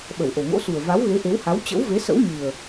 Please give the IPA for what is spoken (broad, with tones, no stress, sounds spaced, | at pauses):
ɓ ə˧˩ w ʔ o˨˩ ŋ o̰˧˥ s u˨˩ ə̯ v a˨˦ w ɣ e˨˦ ʔ e˨˦ w h a˨˦ w t͡ɕ ə̰˧˥ w v e˨˦ s ə̰˧˥ w ɲ ɨ˨˩ ə̯